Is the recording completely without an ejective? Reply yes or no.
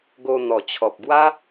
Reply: yes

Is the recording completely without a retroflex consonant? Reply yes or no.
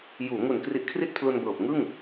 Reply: yes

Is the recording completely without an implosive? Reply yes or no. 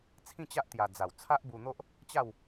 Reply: yes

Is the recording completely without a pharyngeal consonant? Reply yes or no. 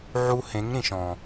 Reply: no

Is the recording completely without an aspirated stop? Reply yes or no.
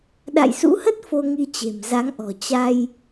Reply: yes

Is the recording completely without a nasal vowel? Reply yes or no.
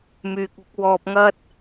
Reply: yes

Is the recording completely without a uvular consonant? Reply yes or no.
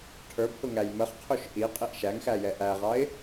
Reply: no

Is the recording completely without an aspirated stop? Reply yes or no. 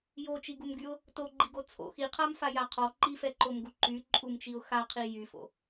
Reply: no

